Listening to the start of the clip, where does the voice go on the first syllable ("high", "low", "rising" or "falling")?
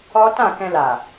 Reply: high